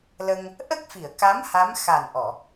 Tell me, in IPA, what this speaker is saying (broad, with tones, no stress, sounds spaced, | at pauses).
l ə˧ ŋ | ʔ ə˦˥ k̚ f i˨˩˨ ə̯ k a˧˥ m h a˧˥ m x a˨˩ n ʔ ɔ˨˩˨